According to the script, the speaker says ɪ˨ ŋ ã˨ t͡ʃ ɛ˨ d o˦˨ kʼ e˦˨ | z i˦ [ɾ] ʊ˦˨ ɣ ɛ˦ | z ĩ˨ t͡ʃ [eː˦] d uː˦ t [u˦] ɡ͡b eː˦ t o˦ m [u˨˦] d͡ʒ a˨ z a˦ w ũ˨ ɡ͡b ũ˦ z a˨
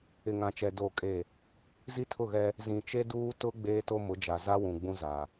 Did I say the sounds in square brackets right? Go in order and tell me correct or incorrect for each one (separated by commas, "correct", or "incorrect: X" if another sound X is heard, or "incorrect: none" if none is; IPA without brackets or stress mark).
incorrect: tʰ, incorrect: e˦, incorrect: ʊ˦, incorrect: ʊ˨˦